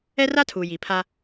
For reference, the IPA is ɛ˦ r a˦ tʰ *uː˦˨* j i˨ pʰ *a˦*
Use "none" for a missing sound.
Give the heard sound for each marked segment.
uː˨, a˦

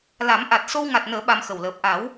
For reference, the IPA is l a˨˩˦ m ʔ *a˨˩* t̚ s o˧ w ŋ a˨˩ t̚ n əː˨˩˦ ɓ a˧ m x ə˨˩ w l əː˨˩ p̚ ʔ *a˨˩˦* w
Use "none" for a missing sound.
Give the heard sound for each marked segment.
a˨˩, a˨˩˦

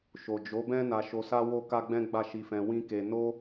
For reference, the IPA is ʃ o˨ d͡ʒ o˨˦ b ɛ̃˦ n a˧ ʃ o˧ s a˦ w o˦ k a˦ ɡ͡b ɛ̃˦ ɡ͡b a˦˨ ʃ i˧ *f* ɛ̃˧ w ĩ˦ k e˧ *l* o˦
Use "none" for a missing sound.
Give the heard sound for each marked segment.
f, n

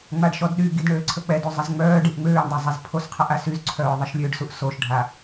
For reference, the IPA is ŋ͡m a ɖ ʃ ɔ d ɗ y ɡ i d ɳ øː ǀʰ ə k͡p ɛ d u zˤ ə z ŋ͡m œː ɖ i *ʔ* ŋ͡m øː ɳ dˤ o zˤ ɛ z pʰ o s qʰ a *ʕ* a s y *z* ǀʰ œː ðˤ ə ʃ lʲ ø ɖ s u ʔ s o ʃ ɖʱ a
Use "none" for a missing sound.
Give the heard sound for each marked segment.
ʔ, ʔ, z

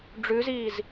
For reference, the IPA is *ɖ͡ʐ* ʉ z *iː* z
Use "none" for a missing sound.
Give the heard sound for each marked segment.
ɖ͡ʐ, iː

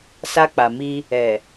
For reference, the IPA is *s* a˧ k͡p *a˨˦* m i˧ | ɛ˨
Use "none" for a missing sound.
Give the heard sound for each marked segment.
s, a˨

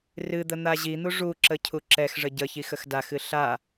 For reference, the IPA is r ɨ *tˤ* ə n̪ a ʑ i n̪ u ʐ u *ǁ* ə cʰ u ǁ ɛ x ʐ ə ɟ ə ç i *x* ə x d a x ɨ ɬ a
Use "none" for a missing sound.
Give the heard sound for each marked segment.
d̪, ǁ, x

